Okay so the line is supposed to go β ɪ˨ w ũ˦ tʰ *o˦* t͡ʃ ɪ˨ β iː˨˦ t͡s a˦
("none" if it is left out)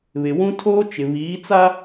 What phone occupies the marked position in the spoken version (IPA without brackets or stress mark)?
oː˦